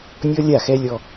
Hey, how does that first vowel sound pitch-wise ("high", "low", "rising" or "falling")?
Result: high